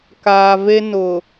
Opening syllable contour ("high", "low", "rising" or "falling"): low